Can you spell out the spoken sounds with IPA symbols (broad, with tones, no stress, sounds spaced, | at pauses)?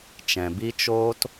t͡ʃ ɛ̃˨ b i˦ t͡ʃ oː˦ t